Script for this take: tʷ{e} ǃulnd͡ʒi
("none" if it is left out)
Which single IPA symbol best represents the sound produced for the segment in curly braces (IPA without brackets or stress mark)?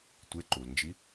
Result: e